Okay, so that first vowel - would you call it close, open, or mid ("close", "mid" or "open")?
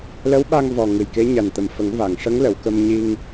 mid